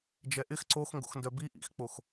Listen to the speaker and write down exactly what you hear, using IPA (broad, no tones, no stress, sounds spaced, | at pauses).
d͡ʒ ɛ ʔ ɪ x ǀ o x ŋ ɡ o̰ x n d œ b i ʔ ḭ x k͡p o x